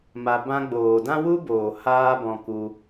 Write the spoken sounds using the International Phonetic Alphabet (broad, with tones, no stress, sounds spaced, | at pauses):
m a˧ b ã˧ ɡ͡b oː˨ d ã˦ w u˦ b oː˨ h aː˦ b ɔ̃˧ k u˧